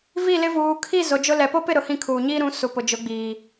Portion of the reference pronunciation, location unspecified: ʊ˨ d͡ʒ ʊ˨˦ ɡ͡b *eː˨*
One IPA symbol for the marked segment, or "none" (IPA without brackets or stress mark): iː˨